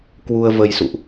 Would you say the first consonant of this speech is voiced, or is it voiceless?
voiceless